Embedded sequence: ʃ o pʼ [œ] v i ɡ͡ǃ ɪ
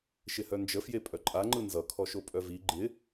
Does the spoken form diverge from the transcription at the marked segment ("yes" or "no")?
no